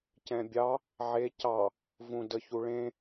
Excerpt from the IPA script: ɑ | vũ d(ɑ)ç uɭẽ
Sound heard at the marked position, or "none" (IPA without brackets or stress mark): ə